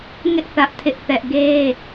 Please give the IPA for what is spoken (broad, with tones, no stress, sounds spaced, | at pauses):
ŋ ɪ˦ ʔ θ ä˦ ʔ tʰ ɪ˦ ʔ θ ɛ˦ ʔ ɡ e˦